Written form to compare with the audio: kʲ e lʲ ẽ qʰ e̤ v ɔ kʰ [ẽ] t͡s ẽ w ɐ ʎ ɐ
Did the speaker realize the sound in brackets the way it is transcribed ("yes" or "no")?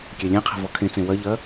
yes